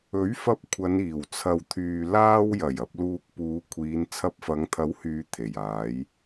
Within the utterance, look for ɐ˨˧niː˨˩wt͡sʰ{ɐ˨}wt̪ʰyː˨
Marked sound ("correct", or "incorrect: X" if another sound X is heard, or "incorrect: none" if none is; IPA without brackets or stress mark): correct